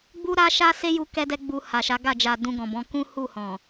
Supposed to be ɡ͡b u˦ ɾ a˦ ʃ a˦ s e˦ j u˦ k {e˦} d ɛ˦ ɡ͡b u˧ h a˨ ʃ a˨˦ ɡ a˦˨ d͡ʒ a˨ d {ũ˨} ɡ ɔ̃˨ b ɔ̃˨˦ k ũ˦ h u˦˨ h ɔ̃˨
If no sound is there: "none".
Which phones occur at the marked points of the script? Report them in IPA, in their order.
ɛ˦, ũ˧

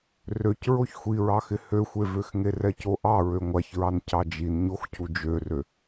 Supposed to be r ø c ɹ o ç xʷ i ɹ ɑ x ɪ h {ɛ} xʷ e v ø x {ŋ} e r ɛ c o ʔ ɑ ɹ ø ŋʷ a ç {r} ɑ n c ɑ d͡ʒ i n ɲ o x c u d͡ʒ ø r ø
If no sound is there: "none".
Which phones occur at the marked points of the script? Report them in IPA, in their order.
ø, ŋ, ɹ

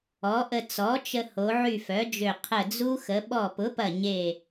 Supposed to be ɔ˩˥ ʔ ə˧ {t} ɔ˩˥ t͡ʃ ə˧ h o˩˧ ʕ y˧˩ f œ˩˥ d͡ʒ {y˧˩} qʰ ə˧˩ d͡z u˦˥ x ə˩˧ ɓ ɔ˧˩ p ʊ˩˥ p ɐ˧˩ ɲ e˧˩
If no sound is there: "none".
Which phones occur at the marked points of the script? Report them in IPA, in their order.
t͡s, ø˧˩

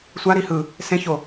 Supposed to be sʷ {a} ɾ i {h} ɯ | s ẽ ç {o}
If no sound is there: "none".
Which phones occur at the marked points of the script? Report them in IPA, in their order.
a, h, o

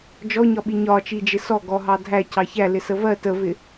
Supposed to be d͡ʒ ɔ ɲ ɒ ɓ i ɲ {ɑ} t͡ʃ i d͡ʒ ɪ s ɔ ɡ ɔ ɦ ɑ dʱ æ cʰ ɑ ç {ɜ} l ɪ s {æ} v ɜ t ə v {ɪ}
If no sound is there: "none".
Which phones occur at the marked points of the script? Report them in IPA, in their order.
ɒ, æ, ə, ɪ

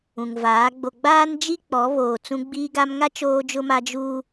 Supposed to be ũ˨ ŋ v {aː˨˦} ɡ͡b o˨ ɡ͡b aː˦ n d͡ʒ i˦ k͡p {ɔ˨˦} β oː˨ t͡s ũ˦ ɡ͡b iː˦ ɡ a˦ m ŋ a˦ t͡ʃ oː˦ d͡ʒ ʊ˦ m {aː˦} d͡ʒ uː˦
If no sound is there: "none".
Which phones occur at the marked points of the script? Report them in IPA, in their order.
aː˨˦, ɔ˨˦, a˦

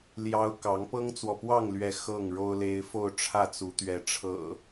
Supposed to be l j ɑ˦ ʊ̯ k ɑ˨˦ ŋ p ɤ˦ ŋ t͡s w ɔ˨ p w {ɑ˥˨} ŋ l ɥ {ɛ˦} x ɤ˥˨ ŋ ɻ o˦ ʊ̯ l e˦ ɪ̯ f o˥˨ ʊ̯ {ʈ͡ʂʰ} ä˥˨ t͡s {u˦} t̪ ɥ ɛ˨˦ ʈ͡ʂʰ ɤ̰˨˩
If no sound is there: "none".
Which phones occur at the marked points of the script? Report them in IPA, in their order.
ɑ˥˨, ɛ˨˦, ʈ͡ʂʰ, u˨˦

